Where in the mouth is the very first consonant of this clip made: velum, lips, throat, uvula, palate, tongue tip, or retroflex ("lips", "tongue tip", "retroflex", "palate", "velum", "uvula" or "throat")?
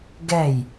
velum